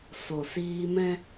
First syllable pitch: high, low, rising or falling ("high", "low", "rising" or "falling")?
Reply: low